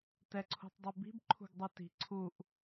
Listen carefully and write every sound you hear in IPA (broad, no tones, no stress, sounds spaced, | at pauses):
t ɛ ǀʰ ṳ tˤ dˤ i b i̤ b ǃʰ ṳ ɡ dˤ ɯ t i̤ ǀʰ u ʔ